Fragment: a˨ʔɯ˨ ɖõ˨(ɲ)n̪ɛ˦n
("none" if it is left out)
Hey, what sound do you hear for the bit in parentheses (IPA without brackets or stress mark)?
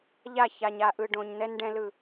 ɲ